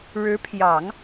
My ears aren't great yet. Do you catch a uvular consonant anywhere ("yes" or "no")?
no